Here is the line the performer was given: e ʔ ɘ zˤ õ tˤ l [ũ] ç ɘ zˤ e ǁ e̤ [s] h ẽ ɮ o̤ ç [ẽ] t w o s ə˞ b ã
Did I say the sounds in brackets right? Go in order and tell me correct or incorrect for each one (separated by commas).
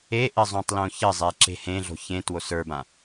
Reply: incorrect, incorrect, correct